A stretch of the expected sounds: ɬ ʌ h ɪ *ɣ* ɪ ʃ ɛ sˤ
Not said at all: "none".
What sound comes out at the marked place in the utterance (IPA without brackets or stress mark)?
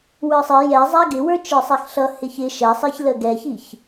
ç